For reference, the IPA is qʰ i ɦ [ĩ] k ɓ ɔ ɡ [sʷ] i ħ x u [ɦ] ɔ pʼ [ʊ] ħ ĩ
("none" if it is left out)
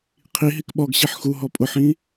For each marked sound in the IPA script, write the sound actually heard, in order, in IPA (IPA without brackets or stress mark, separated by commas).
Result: i, ɕ, ɦ, ʊ